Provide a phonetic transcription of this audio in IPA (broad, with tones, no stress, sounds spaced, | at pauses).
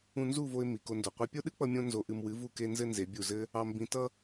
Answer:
ũ˧ n z u˦˨ v o˧ ɪ̯ m i˨ k o˧ n d o˨ qʷ ɛ˧ pʲ o˦ ɗ ɨ˦ k͡p ʌ˧ mʲ õ˦ n z o˧ ʔ ɨ˧ m w ɨ˨˦ v u˧ k e˧ n z ɘ˦ n z e˨˦ bʲ u˦˨ z ɘ˦ | ɑ˧ m b ĩ˧ t ʌ˦